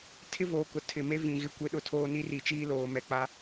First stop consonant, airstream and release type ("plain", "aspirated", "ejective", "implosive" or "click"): aspirated